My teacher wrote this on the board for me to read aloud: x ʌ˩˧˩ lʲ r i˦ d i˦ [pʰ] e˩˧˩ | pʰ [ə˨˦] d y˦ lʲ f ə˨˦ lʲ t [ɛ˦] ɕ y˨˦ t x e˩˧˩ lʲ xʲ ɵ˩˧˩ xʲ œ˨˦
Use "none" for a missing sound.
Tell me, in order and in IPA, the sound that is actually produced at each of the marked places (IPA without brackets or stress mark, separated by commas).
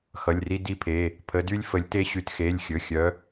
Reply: pʰ, ə˨˦, e˦